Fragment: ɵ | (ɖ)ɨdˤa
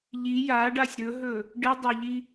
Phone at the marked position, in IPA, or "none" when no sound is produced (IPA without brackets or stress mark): ɖ